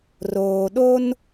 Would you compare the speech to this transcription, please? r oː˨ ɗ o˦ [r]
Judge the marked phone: incorrect: n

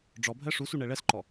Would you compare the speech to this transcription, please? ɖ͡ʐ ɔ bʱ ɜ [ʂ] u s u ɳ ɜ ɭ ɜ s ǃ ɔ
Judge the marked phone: correct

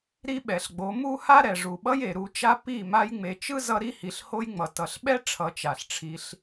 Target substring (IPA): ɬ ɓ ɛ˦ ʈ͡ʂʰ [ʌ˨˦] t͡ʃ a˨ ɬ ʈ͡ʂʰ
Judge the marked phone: correct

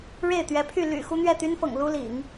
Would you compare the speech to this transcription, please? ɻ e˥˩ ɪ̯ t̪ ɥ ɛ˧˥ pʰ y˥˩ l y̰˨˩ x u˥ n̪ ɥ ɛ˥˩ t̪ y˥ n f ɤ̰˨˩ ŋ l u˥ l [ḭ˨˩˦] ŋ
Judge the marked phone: correct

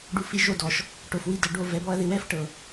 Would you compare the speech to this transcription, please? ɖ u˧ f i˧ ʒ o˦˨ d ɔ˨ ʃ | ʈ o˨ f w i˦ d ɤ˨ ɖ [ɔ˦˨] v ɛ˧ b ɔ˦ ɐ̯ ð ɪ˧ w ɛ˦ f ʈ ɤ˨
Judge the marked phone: incorrect: o˦˨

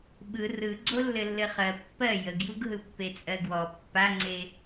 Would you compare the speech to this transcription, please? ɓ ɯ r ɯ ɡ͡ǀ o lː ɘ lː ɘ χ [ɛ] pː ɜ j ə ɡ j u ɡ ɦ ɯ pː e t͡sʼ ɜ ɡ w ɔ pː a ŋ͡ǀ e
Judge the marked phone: incorrect: ɜ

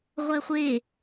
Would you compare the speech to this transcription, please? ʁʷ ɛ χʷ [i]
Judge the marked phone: incorrect: e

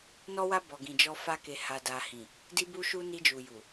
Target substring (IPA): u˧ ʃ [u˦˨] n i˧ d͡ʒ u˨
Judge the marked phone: incorrect: u˧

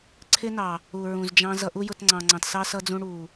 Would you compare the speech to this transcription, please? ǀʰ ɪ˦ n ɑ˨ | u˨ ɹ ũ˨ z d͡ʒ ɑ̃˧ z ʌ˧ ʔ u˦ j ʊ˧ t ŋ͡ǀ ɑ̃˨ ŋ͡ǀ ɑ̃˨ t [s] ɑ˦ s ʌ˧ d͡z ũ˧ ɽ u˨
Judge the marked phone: correct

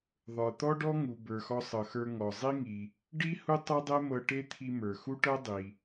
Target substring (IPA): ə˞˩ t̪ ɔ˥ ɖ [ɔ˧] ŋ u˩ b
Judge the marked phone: incorrect: ɔ˥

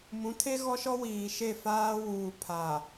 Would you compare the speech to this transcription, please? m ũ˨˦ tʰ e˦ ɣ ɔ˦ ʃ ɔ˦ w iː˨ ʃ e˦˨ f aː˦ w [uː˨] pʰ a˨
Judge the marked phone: correct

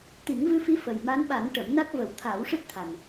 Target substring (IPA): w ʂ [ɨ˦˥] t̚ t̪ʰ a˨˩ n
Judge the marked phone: correct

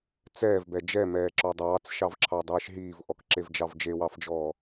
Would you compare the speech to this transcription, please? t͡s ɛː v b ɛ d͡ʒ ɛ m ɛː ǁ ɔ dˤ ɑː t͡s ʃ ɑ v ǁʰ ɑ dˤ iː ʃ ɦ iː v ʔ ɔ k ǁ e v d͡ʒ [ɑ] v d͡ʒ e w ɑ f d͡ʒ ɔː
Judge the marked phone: correct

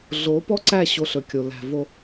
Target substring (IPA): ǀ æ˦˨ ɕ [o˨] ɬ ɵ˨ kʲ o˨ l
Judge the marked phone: incorrect: o˧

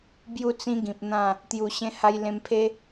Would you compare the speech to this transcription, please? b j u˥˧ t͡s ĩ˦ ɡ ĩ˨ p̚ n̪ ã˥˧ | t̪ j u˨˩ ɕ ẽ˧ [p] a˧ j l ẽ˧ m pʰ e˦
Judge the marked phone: incorrect: h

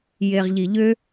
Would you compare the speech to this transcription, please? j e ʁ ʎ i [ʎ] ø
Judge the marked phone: correct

